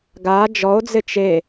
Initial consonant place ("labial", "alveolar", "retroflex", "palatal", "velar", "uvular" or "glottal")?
velar